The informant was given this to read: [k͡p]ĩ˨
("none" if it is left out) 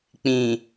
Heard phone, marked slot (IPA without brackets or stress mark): k͡p